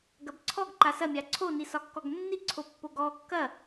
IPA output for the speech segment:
ɡ ɐ b ǀʰ ɔ ɡ ǃ a s ɐ mʲ a ǀʰ o n i s ɒ kː ɔ ɡ nː i ǀʰ o pː o ɡ ɔ kː ɐ

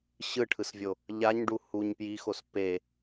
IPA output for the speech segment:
ɕ ɯ ʈʰ ɯ s vʲ o | ʎ a ɲ ɖ u h u ɲ p j i x o s p e

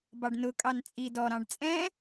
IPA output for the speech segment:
b ɑ ɖ n ʊ kʼ ɑ n t͡sʼ i d ɔ ɾ ɑ̃ ɖ t͡sʼ ɛ̃

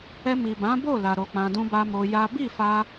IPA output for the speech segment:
ɛ˧ m i˨ b ã˨˦ b o˦˨ l a˨ ɾ o˧ k͡p ã˧ d ũ˦ b a˦ m o˧ j a˦ b i˦˨ f a˧

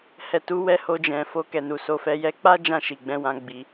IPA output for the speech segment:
h ɛ˨ t u˨˦ w ɛ˧ h o˧ d͡ʒ ɛ̃˨ f o˧ k ɛ˨ n u˨ s o˧ f ɛ˧ j ɛ˧ k͡p a˦ d͡ʒ ã˦˨ ʃ i˨ ɡ͡b ɛ̃˧ w ã˧ ɡ͡b i˧

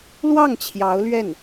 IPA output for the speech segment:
l w ɑ˥˩ ŋ t͡ɕʰ j ɑ˧˥ ʊ̯ l ɥ ɛ˥˩ n

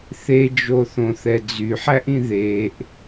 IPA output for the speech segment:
θ e d͡ʒ o θ õ θ ɛ d͡z y ħ æ ʔ ĩ ð e ʔ

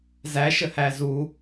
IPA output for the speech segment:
z æ ʃ ə h æ z u

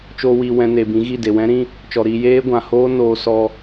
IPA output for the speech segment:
t͡ʃ oː˧ w iː˧ w ɛ̃˧ n e˨ b ĩ˨˦ ɣ i˦˨ d e˨ w ɛ̃˦ ɾ ĩ˦ | t͡ʃ ɔ˨ ɾ iː˧ j eː˦ ɡʷ ã˨ h oː˦ n oː˧ s ɔ˧

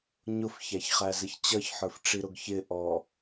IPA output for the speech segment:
ɲ ʊ f ç æ ç χ æ z ɪ ç t͡ɕ ʌ ç ħ ə˞ f ʈ͡ʂ i ɾ ʊ ɡ ç ɪ ʔ ɔ

